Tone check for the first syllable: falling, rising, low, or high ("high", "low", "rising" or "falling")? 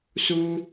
high